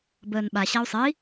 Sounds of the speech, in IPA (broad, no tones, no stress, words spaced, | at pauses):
bəːnɓa ɕau̯sˤɛi̯